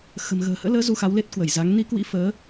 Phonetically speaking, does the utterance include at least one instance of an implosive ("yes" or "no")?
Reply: no